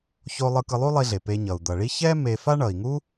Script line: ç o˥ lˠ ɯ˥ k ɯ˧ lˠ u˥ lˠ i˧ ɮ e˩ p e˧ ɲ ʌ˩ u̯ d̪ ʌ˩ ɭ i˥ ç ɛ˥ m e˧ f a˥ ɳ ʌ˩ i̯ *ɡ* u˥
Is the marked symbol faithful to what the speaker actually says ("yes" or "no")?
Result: no